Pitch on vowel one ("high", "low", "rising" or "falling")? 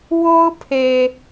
high